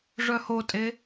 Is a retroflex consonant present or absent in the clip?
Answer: present